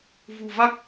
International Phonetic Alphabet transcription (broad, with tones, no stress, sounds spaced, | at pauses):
v ṳ˨˩ v a˦˥ k̚